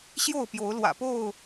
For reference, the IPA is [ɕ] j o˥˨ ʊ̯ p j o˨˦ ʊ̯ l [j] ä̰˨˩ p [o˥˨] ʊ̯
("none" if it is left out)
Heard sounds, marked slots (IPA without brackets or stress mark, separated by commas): ɕ, w, o˥˨